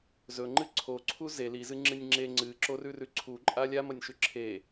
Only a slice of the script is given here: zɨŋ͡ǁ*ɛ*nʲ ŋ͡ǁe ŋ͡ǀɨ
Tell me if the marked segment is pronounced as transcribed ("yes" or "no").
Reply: no